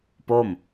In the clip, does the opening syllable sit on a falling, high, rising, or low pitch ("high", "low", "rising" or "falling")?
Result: falling